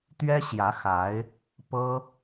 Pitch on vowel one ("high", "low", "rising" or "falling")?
high